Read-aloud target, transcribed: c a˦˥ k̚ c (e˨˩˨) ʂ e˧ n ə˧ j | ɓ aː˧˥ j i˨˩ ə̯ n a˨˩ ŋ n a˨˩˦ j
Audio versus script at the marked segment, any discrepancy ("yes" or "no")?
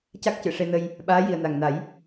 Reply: yes